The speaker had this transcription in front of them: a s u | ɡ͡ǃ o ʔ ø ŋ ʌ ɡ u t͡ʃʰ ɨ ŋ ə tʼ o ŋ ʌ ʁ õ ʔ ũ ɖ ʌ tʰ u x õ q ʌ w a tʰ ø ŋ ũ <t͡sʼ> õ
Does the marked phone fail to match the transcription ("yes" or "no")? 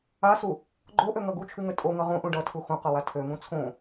yes